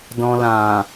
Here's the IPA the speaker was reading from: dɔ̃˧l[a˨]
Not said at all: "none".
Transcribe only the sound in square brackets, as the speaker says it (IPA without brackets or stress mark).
ã˨